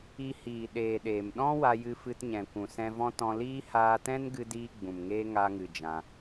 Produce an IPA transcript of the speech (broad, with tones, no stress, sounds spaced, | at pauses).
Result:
i˧ h iː˨ ɗ eː˨ ɗ eː˨ m ɗ ɔ̃˦ w a˧ j ɨ˧ f ɨ˧ t ɲ ɛ̃˨ kʷ ũ˨ s ɛ̃˧ v ɔ̃˦ t ɔ̃˧ l iː˦ h aː˧ t ɛ̃˦ n ɡ ɨ˧ d iː˧ ɡ͡b ũ˨ m ŋ eː˦ ŋ a˧ ŋ ɨ˨ d͡ʒ ã˧